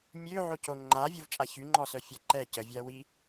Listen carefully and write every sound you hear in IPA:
mʲ ø ʕ o c o ŋ͡ǃ a vʲ u v t͡ʃʼ a ç y ŋ͡ǃ ɔ s œ fʲ a ǃ ɛ c ə vʲ a w i

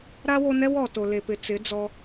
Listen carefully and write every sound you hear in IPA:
ɾ a˦ w o˧ n ɛ˦ w ɔ˨ t o˨ l e˨ p ɪ˨ t͡s ɪ˨˦ d͡z ɔ˧

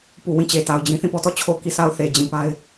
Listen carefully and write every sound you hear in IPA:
p u˨ w ĩ˦˨ t͡ɕ e˨ t a˨ ʊ̯ d͡ʑ ĩ˦ θ ĩ˦˨ p ɔ˦ t ɔ˦˨ t͡ɕʰ o˦˨ k i˦˨ s a˦˨ ʊ̯ θ e˨ d͡ʑ ĩ˨ p a˦ ɪ̯

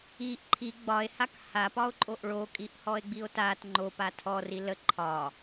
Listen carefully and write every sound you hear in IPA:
i ʔ ǃʰ i ɡ͡b ɒ e̯ h a k h a p ɒ o̯ ǃʼ o ʔ ɭ o kʼ i ʔ h ɔ e̯ ɡ͡b i o̯ t a t ŋ͡ǃ o p a tʰ ɔ r i l ə ǃʰ ɒ

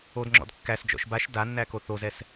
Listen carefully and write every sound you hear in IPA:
o d ŋ͡ǁ ɔ̰ d kː æ s d͡ʒ ɔ̰ ʃ b a ʃ d a nː æ k o θ o z ɛ s

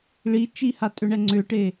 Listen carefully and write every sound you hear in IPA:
ɭ i t͡ʃ i h a tʼ ʏ ɳ ɛ ŋ͡ǀ ʏ ʈ e

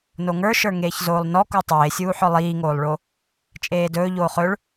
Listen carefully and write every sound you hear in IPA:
n o ŋ ə˞ ʃ ə˞ ŋ eː ç z oː lˠ n ɔ k u tˤ eː sʲ uː ħ ɔ lˠ iː ŋ oː lˠ ɭ o | t͡ʃʼ eː d ɵː ʎ oː χ ɵ ɭ

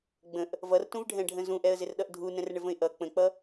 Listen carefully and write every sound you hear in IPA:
ɡ͡b ə̃ ʔ | v ʌ r t ũ v ɖʱ ɛ̃ ɖʱ ə̃ z ũ ʔ ɛ ə̯ z ɪ r ɗ ʌ ʔ dʱ u n ɛ̃ r ɳ ɪ v ə̃ ɪ̯ ʔ ʌ k͡p ə̃ k͡p ʌ

